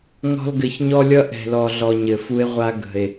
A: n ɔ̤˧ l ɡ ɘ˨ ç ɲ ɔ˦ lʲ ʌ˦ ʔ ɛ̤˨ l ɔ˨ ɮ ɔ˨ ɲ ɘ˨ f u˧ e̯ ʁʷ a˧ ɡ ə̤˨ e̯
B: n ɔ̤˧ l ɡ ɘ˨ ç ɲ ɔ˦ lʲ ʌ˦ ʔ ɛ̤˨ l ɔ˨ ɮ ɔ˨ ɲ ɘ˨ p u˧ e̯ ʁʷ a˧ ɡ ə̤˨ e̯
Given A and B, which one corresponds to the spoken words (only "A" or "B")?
A